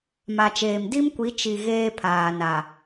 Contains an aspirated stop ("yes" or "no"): yes